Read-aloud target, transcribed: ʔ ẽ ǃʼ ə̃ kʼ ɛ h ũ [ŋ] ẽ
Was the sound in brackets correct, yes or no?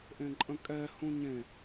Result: no